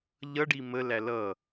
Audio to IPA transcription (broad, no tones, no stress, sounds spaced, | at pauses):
ʎ ʌ ɖ i m ə l æ l ʌ